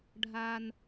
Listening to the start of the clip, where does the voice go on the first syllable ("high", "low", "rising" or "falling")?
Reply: low